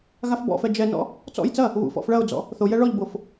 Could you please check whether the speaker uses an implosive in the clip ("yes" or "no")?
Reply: no